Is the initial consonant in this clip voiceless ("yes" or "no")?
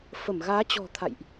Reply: yes